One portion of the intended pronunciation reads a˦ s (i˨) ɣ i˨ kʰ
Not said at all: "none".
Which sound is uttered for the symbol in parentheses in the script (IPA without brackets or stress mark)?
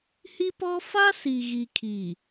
i˨